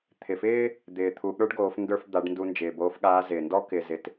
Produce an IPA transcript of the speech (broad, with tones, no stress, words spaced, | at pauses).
t̪ʰɪ˩fɪː˥ | d̪ɪː˩ t̪ʰu˩˧ ɠə˞˧˥ɖɡoː˩˧fndə˞˧fd̪a˩˧ɖ ndu˧nd͡ʒɪː˩boː˧˥fɠaː˧˥ zɪː˩ndɔ˥ kɪ˧ zɪ˧t